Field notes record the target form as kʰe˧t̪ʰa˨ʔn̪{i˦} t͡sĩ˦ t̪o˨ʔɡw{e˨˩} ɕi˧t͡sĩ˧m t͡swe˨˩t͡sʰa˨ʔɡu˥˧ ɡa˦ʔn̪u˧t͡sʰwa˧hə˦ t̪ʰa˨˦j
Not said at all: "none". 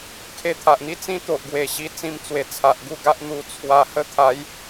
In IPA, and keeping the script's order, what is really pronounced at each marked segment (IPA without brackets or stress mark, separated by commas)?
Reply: i˦, e˨˩